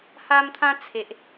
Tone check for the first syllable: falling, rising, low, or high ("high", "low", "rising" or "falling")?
high